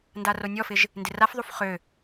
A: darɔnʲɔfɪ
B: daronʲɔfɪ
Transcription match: B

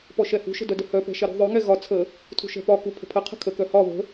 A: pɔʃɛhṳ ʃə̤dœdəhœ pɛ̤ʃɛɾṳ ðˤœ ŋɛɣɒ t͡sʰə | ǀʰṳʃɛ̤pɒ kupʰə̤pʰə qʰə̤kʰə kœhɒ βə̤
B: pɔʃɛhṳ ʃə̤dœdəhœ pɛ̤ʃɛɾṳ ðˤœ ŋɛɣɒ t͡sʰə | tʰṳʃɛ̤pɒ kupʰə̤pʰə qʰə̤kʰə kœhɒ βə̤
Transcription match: B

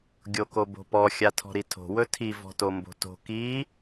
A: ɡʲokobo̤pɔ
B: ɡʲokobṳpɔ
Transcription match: A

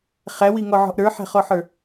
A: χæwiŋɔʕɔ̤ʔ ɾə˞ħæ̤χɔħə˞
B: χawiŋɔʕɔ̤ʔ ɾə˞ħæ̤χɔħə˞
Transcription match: A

